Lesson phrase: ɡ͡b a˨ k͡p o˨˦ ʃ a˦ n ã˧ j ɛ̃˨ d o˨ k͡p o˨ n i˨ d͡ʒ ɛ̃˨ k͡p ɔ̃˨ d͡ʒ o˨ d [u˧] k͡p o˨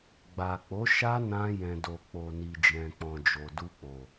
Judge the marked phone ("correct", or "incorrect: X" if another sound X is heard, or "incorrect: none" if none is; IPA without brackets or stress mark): correct